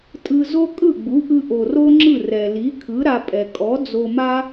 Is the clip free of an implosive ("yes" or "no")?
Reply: yes